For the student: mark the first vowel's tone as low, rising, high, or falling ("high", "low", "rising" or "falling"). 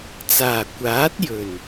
low